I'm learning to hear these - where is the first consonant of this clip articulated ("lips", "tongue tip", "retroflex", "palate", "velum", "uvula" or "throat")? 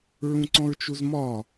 tongue tip